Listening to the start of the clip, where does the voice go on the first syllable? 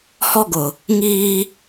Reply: high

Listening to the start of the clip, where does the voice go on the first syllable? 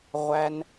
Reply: low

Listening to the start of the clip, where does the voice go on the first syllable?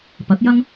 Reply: rising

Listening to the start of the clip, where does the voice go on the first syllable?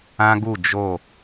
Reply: high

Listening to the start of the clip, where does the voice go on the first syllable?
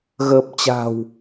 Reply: low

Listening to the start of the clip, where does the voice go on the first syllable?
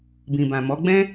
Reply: low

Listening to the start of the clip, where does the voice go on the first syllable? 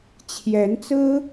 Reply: rising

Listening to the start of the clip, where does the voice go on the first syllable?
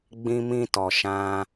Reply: high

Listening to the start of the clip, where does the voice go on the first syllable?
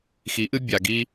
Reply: rising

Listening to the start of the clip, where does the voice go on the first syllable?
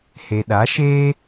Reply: low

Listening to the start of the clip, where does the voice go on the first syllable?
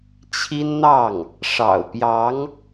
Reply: high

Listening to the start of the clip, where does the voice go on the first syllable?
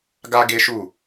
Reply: high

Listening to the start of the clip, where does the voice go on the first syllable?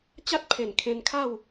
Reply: high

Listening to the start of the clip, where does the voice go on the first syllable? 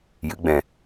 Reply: rising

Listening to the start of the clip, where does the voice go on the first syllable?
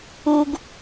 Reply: high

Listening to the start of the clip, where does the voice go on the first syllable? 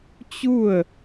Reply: falling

